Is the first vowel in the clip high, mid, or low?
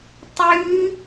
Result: high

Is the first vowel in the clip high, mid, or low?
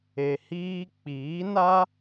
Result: mid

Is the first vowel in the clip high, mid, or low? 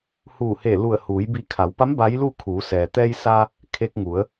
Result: high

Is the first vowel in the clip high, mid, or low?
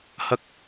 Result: low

